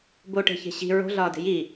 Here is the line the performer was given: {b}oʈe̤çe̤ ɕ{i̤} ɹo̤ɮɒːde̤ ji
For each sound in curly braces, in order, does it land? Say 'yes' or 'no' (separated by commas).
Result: yes, yes